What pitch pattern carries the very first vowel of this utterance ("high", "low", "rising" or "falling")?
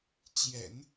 low